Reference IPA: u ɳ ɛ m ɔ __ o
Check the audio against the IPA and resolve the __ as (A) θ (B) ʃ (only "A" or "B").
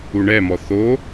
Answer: A